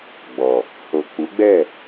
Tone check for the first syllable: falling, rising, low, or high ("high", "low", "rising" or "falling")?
low